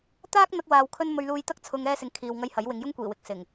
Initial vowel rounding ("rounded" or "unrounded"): unrounded